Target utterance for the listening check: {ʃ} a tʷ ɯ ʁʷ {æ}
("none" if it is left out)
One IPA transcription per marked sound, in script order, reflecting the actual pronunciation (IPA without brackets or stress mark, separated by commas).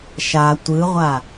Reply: ʃ, a